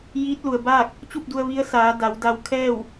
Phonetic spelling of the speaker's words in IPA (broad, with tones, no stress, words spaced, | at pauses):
jiː˧˥t̚lu˩ə̯baː˥˨k̚ | t͡ɕu˥˨p̚du˧ə̯ ʋi˧˥ə̯saː˩˧ da˩˧wda˧w kʰɛː˥˨w